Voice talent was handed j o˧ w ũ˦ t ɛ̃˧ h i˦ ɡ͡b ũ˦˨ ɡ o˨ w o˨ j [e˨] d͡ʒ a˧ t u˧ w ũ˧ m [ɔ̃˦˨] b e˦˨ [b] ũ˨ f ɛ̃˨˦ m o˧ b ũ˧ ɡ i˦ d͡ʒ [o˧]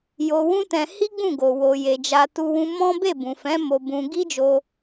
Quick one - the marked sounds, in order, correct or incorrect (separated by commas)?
correct, incorrect, correct, correct